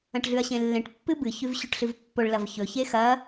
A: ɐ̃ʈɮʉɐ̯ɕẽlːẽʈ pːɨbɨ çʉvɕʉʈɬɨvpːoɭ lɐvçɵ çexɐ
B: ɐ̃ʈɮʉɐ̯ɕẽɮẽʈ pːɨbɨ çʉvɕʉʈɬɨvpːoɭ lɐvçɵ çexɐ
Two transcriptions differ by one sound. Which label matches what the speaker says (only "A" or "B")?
A